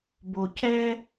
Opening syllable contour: low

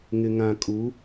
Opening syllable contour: low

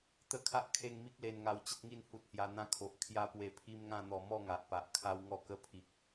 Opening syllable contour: high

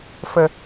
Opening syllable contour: low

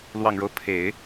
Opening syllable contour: low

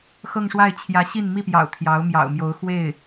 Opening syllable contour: falling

